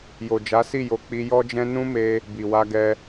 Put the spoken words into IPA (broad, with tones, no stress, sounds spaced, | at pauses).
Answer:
j o˨ d͡ʒ a˨˦ s i˦˨ j o˨˦ k͡p i˧ j ɔ˦ d͡ʒ ɛ̃˦ n ũ˦ m e˧ | b i˨ w a˧ ɡ ɛ˧